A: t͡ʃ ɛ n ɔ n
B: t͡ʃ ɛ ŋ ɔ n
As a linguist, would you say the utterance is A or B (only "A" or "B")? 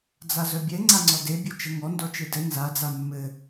B